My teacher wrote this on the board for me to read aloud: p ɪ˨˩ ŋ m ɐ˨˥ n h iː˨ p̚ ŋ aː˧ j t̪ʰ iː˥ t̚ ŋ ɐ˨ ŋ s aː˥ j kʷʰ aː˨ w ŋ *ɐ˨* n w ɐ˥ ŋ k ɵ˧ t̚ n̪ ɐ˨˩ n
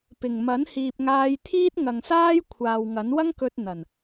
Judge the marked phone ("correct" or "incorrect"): incorrect